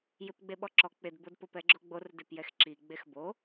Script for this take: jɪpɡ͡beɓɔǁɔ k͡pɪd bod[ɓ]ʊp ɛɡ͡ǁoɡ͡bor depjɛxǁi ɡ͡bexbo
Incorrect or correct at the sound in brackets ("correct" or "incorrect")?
incorrect